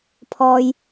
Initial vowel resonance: oral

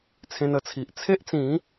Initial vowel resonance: nasal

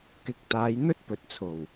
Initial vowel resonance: oral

